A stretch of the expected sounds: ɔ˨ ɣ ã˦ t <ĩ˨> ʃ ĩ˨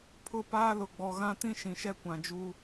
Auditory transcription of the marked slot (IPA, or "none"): ĩ˦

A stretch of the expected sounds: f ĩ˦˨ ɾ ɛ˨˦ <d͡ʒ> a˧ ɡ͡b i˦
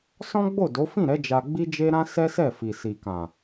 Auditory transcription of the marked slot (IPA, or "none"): d͡ʒ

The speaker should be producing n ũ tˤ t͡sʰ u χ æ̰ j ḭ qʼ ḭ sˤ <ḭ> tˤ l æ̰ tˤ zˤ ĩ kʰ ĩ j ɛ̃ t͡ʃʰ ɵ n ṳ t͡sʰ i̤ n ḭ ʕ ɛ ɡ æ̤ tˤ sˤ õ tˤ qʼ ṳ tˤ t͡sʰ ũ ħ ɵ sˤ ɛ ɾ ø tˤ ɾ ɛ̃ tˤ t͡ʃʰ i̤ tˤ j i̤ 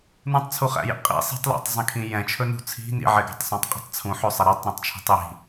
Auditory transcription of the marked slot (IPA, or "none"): i̤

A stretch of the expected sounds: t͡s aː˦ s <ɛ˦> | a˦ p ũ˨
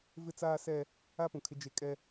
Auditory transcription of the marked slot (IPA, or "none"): ɛ˦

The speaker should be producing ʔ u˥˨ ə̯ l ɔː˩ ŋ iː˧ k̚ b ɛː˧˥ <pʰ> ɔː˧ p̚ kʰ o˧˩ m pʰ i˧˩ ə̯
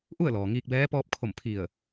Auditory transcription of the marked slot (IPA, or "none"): p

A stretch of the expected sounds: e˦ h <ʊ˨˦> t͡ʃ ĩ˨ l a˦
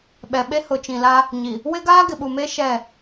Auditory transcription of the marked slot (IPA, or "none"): ʊ˨˦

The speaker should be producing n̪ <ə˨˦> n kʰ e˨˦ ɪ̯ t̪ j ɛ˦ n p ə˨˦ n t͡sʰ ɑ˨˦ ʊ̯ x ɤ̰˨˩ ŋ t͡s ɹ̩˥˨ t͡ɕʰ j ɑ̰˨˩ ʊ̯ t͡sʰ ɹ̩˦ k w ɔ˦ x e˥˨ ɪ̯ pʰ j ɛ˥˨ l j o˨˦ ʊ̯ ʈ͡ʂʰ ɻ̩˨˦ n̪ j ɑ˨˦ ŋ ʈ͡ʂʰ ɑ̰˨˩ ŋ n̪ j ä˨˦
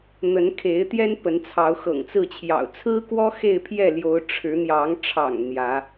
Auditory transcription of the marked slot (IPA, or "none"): ə˨˦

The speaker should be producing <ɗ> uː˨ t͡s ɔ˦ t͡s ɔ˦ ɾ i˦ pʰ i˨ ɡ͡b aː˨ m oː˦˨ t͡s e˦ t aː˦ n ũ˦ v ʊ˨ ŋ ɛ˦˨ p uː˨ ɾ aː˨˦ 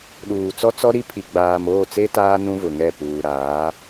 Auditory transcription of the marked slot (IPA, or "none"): ɗ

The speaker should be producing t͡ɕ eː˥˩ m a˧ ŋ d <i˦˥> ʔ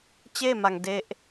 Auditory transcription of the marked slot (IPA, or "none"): e˦˥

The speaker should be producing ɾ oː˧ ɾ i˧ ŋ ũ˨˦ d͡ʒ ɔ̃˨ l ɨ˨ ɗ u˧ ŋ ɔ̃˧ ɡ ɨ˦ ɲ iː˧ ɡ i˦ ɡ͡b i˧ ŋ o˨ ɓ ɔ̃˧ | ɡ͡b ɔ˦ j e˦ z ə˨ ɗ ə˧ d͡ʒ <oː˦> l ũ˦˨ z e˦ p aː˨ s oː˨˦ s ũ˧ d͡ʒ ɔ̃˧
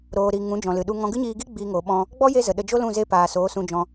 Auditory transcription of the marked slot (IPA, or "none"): o˦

